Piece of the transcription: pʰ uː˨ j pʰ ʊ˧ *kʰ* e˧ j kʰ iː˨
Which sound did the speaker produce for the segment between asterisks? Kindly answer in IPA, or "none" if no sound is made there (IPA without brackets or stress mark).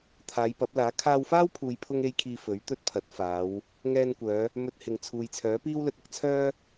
ŋ